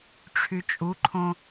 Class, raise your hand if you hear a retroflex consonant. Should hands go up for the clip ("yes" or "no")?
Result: yes